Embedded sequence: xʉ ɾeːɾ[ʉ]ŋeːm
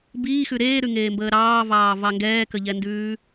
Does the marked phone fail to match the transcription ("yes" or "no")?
no